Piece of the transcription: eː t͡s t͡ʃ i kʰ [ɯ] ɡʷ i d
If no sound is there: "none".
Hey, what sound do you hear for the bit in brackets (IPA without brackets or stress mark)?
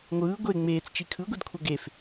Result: ɯ